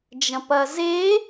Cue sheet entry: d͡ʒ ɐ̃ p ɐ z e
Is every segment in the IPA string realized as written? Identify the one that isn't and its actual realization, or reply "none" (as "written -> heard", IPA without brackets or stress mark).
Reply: none